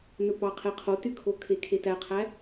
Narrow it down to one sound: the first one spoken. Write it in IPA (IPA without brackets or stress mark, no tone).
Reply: n